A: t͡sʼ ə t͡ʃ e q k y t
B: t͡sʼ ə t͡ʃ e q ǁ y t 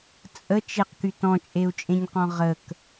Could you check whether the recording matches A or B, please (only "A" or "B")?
A